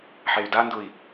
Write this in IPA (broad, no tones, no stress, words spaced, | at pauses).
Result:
ħey̯dandʊi̯